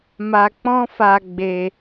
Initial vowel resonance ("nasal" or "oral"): oral